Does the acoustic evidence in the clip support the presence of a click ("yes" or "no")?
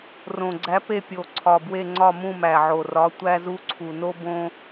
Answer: yes